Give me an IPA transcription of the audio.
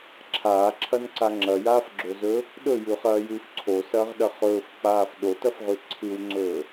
ǁʰ aː ǁʰ ɐ n ǀ a ŋ͡ǁ ɐ j aː f ɡ͡ǁ o z ɵː | ɗ ɵ j ʉ χ ɐː j ʉː f ǀʰ o s ɐː ʁ ɗ ɐ χ ɵː f k͡p aː f ɗ o t ɐ f ʁ ʉ ǀʰ ɨ w ŋ͡ǀ ɵː

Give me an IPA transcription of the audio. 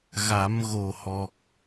ɣ a˨˩˦ m ɣ o˨˩ h ɔ˨˩ k̚

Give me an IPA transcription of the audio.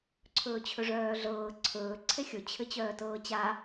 ǀʰ ɵː t͡ɕʰ ɵ ʐ œː ɮ ɤː ǀʰ ɵː ǀʰ e xʲ ɵ t͡ɕʰ ɘ t͡ɕ œː t ɤː t͡ɕ a

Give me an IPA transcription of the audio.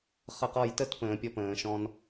χ ə˧˩ q ɔ˧˩ j t ə˥˨ t p ə̃ː˨˩˦ pʲ ɔ˧ p ə̃ː˨˩˦ ʃ ɔ̃˥ n

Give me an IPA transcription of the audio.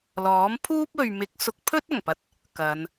l ɔː˨˥ m pʰ uː˥ p̚ ɵ˨ ɥ m ɪ˨˥ k̚ s ʊ˨˥ k̚ pʰ ɵ˥ t̚ ɐ˨˩ ŋ p ɐ˨ t̚ | k ɐ˨˧ n

